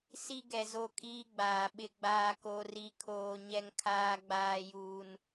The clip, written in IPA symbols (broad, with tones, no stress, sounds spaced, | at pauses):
s i˦ ɡ ɛ˨ z o˦ kʼ iː˦ ɡ͡b aː˨ ɓ ɪ˦ ɡ͡b aː˦ k o˦ r i˦ kʰ oː˦ ɲ ɛ˦ ŋ kʰ aː˦ ɡ͡b aː˦ j uː˦ n